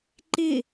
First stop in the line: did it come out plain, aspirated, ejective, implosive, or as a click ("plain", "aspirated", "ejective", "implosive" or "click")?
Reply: click